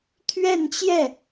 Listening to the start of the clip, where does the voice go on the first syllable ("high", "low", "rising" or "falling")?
falling